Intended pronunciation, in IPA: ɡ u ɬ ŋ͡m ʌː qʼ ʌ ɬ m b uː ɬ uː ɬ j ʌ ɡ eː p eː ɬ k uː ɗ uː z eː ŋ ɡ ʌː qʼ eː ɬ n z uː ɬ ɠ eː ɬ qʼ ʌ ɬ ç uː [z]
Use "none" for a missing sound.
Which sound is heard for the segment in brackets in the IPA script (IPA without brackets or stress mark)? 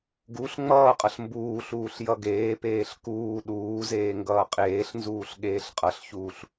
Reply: ɬ